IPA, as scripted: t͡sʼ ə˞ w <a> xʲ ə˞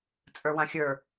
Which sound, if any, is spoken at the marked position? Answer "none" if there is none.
ã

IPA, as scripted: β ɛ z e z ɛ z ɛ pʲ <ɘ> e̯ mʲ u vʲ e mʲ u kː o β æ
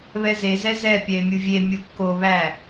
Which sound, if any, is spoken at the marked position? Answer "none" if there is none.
ɛ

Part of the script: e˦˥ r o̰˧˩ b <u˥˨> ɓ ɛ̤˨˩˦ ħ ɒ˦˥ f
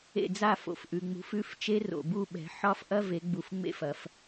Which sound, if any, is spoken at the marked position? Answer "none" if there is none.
u˥˨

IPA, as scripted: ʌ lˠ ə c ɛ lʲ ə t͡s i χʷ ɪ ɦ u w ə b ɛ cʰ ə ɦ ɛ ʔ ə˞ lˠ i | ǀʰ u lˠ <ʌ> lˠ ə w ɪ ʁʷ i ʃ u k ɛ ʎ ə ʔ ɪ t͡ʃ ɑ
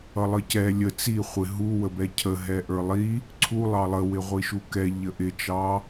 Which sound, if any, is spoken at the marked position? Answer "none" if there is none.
ɑ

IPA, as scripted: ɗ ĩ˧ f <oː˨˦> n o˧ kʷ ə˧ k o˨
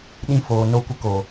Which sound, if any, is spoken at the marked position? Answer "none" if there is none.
oː˨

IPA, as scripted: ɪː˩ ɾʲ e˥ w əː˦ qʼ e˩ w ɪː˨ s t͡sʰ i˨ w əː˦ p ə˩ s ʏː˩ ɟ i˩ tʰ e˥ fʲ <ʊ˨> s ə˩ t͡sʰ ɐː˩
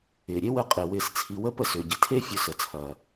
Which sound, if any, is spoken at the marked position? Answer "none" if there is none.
ʊ˨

